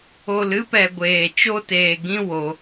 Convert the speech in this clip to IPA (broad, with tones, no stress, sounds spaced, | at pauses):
o˨ l ɨ˧ p ɛ˨ ɡʷ eː˨ t͡ʃ o˧ t eː˨ ɡ ĩ˦ w o˧